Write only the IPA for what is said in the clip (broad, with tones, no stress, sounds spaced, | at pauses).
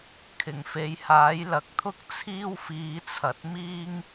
kʰ ɪ˨˩ ŋ f e˨˧ j h aː˨˥ j l ɐ˨ k̚ t̪ʰ ʊ˥ k̚ t͡sʰ iː˥ w f iː˨˧ t͡sʰ ɐ˨ t̚ m iː˥ ŋ